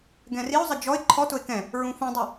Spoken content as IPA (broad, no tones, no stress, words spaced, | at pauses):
ɡɛ̃riʊ̯zˤə d͡ʒɔɪ̯ ǃʰɔtʊɪ̯ kɛ̃ | ɹũfũdˤu